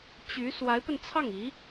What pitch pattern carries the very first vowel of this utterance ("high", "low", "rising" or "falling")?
rising